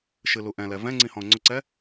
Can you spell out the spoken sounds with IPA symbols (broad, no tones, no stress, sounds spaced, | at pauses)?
ʃ ɨ l u ʔ ɛ̃ l ɛ v ɛ̃ ŋ͡ǀ ĩ h ɔ̃ ʊ̯ ŋ͡ǀ ʊ ǀ ɛ